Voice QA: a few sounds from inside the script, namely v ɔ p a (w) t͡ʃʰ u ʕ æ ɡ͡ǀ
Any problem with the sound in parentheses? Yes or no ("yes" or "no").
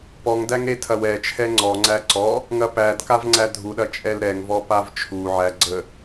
yes